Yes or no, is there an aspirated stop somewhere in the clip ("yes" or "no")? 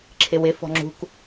yes